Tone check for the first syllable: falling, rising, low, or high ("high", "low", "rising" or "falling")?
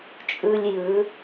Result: low